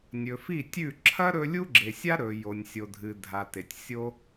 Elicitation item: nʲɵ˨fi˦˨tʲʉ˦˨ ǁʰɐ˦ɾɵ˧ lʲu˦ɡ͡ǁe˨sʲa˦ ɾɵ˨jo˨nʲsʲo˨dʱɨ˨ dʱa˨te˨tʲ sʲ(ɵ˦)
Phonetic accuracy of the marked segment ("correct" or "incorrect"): incorrect